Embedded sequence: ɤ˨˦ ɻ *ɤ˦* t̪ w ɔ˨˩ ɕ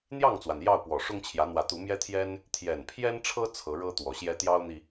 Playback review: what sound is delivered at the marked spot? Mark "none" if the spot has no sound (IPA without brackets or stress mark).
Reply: ɤ˦